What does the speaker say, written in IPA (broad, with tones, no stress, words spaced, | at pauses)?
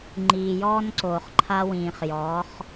ŋ͡ǃiː˨jɔː˦nǀoː˨χǃʰa˦ wĩː˨χjɔː˨˦χ